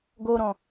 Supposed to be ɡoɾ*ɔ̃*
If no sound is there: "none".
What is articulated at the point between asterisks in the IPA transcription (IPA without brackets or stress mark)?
ɔ̃